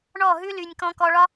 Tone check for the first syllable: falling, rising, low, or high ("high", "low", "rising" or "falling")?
falling